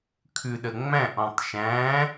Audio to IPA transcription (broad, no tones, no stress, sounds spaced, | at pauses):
kʰ ʉ ɗ ə ŋ͡m æ̃ ʔ ɔ̃ tˤ ʃ æ̃